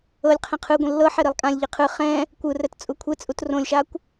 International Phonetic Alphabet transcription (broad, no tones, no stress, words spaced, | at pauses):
ɤlʲqʰɛ̃ qʰɯ ɡʷẽlːɤħe ɾilˠkʼãlʲʎi qʰɯ χɛ̃ | kʷɯrɛt t͡sʼukʷʰet͡sʼut rõlʲʃakʷ